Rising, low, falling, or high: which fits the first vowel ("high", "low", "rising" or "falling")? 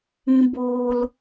low